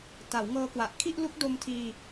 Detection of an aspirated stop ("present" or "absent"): present